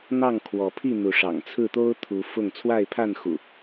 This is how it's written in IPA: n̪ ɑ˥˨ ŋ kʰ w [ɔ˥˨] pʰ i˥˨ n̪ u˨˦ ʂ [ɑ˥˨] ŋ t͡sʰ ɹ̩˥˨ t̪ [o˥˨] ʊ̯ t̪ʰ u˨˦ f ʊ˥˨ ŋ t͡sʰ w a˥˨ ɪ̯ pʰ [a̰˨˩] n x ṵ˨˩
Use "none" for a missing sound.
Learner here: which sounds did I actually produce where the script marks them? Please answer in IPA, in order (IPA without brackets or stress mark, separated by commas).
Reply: ɔ˨˦, ɑ̰˨˩, o˦, a˥˨